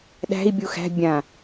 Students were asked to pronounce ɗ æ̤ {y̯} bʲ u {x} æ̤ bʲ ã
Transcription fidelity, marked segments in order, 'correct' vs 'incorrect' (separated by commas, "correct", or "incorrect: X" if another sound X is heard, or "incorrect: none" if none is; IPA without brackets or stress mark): incorrect: i̯, correct